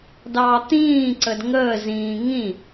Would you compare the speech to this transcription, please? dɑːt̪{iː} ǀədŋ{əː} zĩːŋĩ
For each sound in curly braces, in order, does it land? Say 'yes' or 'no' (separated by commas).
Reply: no, yes